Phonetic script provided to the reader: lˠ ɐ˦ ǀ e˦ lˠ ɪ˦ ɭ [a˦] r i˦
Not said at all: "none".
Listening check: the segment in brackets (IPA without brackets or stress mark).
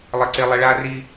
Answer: a˦